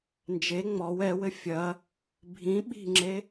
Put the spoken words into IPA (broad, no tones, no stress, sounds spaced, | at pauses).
n d͡ʒ e ŋ͡m ɔ w ɛ w ɘ fʲ ɐ | bʱ ĩ ɓ i̤ ŋ͡ǁ e